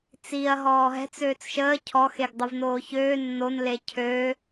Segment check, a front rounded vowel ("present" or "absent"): present